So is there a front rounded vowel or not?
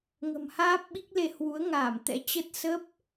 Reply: no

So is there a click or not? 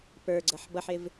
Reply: yes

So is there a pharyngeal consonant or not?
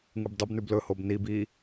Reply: no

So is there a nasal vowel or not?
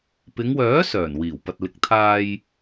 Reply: no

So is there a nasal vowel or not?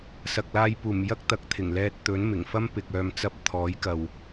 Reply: no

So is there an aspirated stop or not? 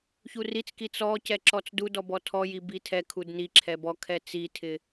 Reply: yes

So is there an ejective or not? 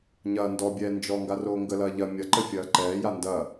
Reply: no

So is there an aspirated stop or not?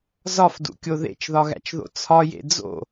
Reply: yes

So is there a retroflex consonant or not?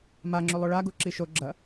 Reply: yes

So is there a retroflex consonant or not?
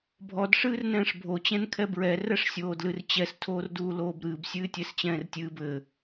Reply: yes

